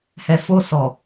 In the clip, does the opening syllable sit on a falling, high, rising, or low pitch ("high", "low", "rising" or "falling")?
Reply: low